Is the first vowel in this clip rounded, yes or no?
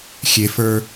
no